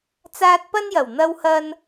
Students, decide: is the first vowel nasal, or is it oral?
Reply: oral